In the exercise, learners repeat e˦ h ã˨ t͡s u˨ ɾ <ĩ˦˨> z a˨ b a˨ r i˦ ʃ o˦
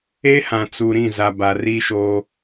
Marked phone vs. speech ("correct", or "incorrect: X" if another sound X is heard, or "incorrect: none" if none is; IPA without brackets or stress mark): correct